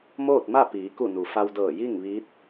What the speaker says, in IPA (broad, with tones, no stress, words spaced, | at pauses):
moː˥˨t̚ma˥˨ piː˩˧ ku˧˩nu˩ fa˧wdɤː˧˩ ji˥˨ŋʋi˧˥t̚